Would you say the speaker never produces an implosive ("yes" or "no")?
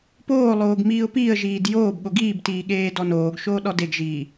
no